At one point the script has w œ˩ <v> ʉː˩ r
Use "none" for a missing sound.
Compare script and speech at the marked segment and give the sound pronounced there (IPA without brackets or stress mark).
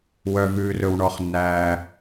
v